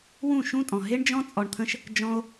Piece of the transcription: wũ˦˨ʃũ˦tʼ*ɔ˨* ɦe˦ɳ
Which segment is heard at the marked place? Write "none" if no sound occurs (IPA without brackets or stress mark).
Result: ɔ̃˨